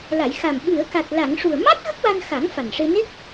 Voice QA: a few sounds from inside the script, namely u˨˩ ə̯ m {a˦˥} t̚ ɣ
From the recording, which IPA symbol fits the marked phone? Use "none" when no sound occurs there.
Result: a˦˥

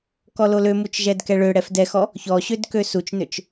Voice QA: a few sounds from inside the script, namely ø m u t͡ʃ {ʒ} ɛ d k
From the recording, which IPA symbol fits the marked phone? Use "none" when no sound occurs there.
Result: ʒ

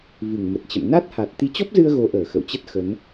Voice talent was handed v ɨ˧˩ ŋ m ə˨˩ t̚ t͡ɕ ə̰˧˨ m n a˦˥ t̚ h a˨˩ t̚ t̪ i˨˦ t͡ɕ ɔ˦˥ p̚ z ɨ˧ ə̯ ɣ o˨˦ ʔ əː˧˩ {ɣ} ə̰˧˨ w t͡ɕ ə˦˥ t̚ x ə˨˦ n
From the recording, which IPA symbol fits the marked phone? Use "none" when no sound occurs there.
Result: x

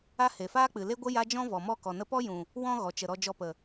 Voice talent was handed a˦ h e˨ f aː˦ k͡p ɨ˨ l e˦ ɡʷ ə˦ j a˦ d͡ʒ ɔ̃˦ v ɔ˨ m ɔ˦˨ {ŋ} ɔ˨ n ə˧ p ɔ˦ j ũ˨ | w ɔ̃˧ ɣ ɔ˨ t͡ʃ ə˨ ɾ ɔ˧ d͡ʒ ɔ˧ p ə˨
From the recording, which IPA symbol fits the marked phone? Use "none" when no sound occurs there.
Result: k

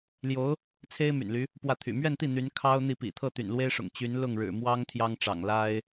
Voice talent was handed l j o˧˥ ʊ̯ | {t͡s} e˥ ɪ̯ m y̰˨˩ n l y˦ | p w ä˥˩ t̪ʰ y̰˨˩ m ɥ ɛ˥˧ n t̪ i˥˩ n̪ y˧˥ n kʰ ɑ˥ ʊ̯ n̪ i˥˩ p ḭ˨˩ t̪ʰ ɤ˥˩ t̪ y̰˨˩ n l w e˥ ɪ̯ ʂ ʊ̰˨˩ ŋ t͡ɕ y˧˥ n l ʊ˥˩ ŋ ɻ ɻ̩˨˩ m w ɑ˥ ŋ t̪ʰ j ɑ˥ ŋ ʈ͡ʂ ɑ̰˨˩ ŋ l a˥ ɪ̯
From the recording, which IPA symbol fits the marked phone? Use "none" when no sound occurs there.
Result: t͡sʰ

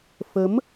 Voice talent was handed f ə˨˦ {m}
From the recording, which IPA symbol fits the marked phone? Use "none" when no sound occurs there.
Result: m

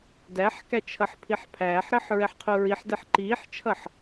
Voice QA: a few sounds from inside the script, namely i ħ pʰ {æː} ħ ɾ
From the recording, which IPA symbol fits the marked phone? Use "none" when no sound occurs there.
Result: æː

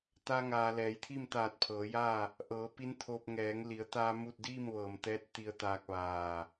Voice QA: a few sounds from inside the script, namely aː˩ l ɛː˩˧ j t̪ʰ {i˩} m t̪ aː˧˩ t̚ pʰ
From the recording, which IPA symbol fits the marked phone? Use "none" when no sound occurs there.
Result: i˥˨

